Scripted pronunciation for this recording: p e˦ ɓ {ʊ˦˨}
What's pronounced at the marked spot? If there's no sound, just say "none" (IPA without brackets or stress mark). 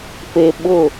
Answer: ʊ˦˨